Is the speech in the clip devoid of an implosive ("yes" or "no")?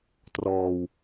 yes